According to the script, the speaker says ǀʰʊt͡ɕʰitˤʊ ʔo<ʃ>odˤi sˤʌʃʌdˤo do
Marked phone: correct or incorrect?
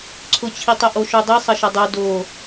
correct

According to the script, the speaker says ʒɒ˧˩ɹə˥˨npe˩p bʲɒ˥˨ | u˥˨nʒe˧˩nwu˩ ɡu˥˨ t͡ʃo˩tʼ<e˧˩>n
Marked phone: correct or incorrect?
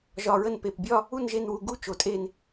correct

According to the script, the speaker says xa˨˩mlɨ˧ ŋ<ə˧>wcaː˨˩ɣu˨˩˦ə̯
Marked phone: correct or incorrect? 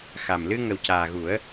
incorrect: ə˨˩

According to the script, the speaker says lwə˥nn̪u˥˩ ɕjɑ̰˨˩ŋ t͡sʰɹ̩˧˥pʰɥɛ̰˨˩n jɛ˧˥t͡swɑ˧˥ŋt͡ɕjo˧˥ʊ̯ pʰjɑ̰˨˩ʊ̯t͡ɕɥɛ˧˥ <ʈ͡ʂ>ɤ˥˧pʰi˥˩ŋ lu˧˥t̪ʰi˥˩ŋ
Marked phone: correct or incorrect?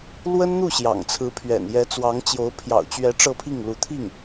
correct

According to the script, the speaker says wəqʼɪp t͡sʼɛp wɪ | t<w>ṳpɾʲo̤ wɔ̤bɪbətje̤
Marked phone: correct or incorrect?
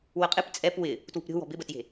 correct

